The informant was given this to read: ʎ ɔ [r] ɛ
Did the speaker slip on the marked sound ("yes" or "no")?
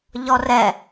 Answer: no